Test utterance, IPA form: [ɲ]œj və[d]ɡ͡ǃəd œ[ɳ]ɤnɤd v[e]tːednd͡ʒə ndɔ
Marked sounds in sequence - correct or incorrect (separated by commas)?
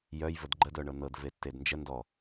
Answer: incorrect, correct, correct, correct